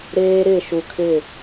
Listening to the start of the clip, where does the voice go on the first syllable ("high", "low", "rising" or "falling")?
high